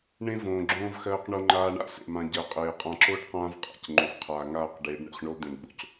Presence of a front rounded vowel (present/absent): absent